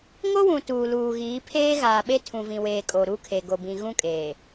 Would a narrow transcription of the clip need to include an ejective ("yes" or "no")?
yes